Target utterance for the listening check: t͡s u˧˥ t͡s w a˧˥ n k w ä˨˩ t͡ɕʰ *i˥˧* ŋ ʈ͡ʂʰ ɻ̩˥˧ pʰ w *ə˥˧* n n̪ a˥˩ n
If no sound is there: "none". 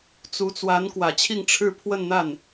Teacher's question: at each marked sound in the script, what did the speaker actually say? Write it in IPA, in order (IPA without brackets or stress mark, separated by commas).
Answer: i˥˧, ə˥˧